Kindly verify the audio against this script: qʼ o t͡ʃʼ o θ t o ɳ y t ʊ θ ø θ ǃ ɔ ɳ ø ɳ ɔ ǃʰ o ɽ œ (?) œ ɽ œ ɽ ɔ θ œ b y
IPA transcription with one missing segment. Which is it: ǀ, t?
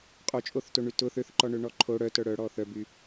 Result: t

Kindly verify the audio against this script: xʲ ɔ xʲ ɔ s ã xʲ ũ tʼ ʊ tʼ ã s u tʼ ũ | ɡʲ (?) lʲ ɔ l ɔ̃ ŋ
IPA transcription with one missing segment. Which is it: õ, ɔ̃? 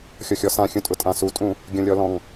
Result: õ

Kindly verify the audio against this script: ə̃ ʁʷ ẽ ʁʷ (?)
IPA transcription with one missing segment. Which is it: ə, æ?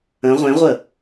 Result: ə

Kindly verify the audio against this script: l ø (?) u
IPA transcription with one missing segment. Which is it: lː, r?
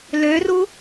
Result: r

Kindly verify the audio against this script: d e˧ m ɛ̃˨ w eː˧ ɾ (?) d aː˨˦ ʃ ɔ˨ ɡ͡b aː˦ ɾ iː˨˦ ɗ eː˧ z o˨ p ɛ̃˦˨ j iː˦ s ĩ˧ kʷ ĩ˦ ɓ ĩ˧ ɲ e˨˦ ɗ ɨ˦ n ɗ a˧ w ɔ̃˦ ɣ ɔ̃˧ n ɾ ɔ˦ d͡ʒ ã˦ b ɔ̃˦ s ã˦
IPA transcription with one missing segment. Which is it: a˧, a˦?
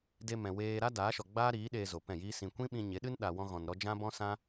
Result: a˦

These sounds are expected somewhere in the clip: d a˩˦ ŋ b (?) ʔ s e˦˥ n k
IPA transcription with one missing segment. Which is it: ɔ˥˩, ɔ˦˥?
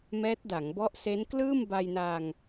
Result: ɔ˦˥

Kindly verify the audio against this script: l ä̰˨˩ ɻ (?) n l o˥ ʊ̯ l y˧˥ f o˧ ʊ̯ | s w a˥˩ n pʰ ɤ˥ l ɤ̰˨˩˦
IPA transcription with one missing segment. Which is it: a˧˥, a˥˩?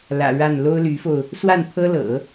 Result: a˥˩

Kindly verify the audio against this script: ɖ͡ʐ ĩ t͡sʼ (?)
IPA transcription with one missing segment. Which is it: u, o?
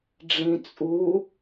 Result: u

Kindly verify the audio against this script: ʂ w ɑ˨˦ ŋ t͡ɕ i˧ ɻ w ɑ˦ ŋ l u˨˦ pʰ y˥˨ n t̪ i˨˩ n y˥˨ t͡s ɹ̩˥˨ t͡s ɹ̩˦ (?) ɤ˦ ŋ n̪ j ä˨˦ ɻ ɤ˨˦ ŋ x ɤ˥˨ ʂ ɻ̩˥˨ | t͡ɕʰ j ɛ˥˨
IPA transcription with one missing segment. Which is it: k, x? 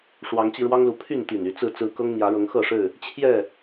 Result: k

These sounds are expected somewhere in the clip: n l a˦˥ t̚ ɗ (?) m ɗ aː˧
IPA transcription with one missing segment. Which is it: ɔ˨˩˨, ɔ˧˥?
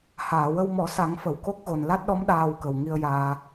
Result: ɔ˧˥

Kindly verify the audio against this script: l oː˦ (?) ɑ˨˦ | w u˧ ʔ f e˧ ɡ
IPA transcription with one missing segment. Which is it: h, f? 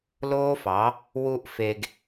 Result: f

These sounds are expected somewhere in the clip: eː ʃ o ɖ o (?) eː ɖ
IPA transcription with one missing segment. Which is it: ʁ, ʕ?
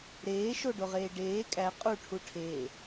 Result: ʁ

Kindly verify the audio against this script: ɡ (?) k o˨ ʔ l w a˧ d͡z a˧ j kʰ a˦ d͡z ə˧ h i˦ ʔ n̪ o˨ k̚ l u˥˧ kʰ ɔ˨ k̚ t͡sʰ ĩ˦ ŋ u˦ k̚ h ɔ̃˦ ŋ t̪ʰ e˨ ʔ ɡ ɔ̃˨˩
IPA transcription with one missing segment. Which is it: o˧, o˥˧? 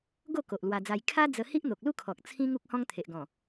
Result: o˥˧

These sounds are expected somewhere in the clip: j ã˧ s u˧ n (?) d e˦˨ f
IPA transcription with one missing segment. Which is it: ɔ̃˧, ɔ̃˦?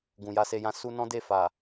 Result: ɔ̃˦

